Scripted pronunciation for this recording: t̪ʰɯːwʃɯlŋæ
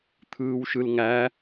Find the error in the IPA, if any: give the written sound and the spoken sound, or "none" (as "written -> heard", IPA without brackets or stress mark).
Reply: none